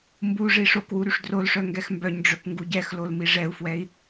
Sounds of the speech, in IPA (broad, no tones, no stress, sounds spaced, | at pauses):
m b u ʐ i ʂ o k w u ɾ y ʂ d r o l ʂ œ ŋ ɡ ɛ x m b œ ɲ ɖ͡ʐ œ k ŋ ɡ u ɟ ɛ x l o l m i ʐ ɛ u̯ f w ɛ i̯